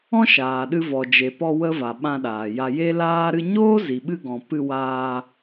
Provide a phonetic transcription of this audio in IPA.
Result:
ɔ̃˦ ʃ aː˨ ɗ ɨ˧ v ɔ˨ d͡ʒ e˨ p ɔ˧ w ə˦ v a˨ ɓ ã˧ ɗ aː˨ j a˧ j e˦ l aː˦ ɾ ɨ˦ ɲ oː˦ z i˨ ɓ ɨ˧ ɡ ɔ̃˨ p ɨ˧ w aː˧

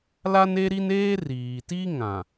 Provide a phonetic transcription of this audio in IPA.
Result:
l a˦ n e˦ ɾ i˦ n eː˦ r iː˨ t i˦ ŋ ã˨

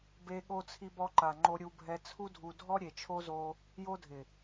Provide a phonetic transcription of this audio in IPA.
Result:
b e˧ ɠ o˧ t͡sʰ i˧ b ɔ˧ ǃ a˨ ŋ͡ǃ o˧ ɾʲ u˧ bʱ ɛ˧ t͡sʰ u˦ dʱ u˧ dʱ ɔ˦ ɾʲ e˨ t͡ʃʰ o˧ z o˧ | j o˧ dʱ ɪ˨

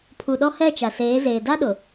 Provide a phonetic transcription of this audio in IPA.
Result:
pʰ u˨ ɗ ɔ˦ h ɛ˦˨ t͡ʃ a˨ s eː˨˦ z eː˨ d a˦ ɗ ʊ˨

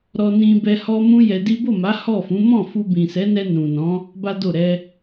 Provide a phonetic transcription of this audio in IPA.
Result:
ɾ ɔ˧ n ĩ˧ b ɛ˧ h ɔ˦ m ũ˦ j ɛ˧ d i˦ b o˦˨ m a˨˦ h ɔ˦˨ f ũ˨˦ m ɔ̃˦˨ f u˧ b ĩ˨ s ɛ˨˦ n ɛ˧ n ũ˨ n ɔ̃˨˦ | b a˦ d o˦˨ ɾ ɛ˧

